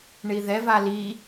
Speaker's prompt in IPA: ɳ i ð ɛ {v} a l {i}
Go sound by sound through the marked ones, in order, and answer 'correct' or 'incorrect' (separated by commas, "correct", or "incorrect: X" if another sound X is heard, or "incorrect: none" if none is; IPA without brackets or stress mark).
correct, correct